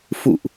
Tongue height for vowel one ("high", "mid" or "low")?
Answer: high